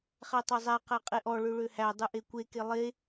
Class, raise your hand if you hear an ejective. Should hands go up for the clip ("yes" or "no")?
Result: yes